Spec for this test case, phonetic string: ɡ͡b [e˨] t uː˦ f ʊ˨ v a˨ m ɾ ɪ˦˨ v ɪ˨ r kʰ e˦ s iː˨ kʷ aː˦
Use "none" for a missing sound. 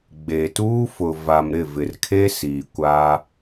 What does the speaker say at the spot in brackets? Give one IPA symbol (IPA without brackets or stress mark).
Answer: e˨